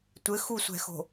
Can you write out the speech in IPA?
tʷɘxusʷɛ̤xo̤

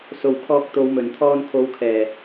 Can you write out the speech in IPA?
so˨w kʰɔː˧k̚t̪o˨˧wmɵ˨˩n t̪ʰɔː˧nkʰo˨˧wkʰɛː˨˩

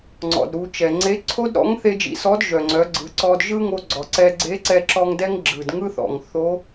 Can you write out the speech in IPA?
ŋ͡ǀɔ̰˩dɾu˩˧ t͡ʃɛ˩ŋ͡ǀe˧˥ ǀʰo˥dɾɔ̰˧˥ŋ θe˥d͡ʒḭ˧˥ sɔ˧˥dʒœ˩ŋ͡ǀœ˩˧ ɡ͡ǀɯ˩˧ǀɔ˧d ʒɯ˥ŋo˧ɡ͡ǀɔ˩ǀɛ˧ ɡ͡ǀe˧˥ǀɛ˧ǁɔ˧ŋ dɛ˥ŋɡ͡ǁɯ˩dŋɯ˥θɔ̰˩ŋ θo˧˥

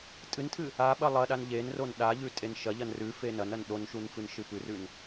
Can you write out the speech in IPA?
tʼɨntʰɨ | a ɓɐlˠɐɗan ʎenron ɗaʎʉ tʼenʃɐʎɐn rʉ fenɐnɐn ɗonʃun fɨnʃɨpʉrʉn

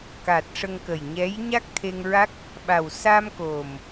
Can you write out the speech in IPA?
ka˨˩t̚ ʂə˧ŋkə˨˩jɲɛ˧˥j ɲa˦˥k̚t̪ʰe˧ŋɹa˦˥k̚ | ɓa˨˩wsa˧m ko˨˩m

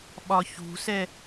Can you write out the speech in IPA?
ɓɒçṳsɛ

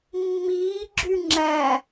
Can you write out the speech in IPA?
mːiːɡ͡ǁy ŋ͡ǁæ

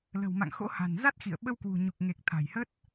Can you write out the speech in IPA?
lə̤˨˩wma̰˧˨ŋ xo̰˧˥ha̤˨˩nza˦˥t̚xḭ˧˨ə̯ ɓə˧wkwṳ˨˩ɲu˨˩k̚ ŋe˨˩k̚ t̪ʰa̤˨˩jhə˦˥t̚

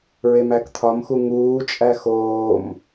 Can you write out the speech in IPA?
ɹemækt̪ʰɒmxu ŋuːt͡ʃʼæ xoːm

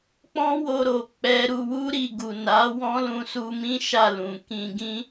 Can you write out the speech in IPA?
k͡pɔ̃˦wo˧ɾo˨ k͡pɛ˧ ɾu˧wu˦ ɾi˦˨ ɡu˨na˨˦ wɔ̃˦lũ˧su˧mĩ˦ ʃa˦˨lũ˨kĩ˧ɡĩ˦

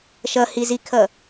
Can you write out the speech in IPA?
ʃʌhizikʰʌ

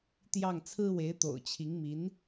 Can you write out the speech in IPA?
t̪jɑ˥˩ŋt͡sʰɹ̩˥we˧˥ɪ̯ t̪o̰˨˩ʊ̯t͡ɕʰi˧˥ŋmi˧˥n

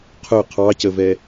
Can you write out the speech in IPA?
qʰʊ qʰɑcəvɛ

